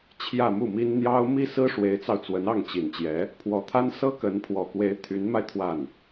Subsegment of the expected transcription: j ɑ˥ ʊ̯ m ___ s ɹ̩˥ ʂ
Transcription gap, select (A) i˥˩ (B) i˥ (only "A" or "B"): B